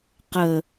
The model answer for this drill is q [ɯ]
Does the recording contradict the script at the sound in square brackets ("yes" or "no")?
yes